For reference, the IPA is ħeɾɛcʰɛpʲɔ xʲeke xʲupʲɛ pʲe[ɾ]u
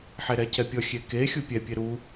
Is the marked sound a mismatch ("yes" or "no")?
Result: no